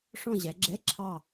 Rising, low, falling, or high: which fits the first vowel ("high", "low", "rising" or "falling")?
falling